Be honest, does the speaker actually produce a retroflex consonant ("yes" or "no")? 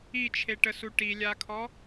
yes